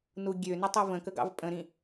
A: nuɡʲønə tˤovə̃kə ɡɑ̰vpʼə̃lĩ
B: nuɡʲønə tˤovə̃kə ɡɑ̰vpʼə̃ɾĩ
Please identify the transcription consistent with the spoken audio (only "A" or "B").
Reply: B